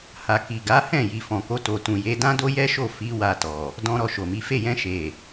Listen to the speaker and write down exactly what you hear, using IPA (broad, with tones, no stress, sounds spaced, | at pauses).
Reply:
h a˨ k i˨ ɡ a˨˦ h ɛ̃˦˨ j i˨ f ɔ̃˨ k o˧ t o˨ t ũ˨ j e˨˦ d ã˦ d o˦ j ɛ˦ ʃ o˦˨ f i˨˦ w a˧ t ɔ˨ | d ɔ̃˦ ɾ ɔ˧ ʃ o˨ m i˨˦ f e˦˨ j ɛ̃˧ ʃ e˨